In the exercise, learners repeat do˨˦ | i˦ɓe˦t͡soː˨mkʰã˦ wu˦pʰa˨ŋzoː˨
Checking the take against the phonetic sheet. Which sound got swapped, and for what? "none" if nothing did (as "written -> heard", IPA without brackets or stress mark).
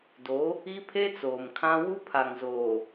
ɓ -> pʰ